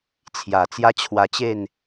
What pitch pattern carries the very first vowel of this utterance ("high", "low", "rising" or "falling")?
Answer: low